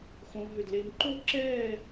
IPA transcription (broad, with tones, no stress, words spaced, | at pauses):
xõ˦˥ɦʏ˥˧dle˦˥m ǃo˥˩ǁɛː˥˧